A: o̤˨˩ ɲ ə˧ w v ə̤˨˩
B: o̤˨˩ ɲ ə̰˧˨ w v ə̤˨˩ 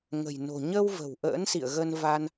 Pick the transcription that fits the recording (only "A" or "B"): A